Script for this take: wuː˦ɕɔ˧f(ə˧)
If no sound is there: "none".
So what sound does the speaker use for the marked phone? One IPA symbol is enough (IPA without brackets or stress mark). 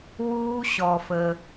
ə˧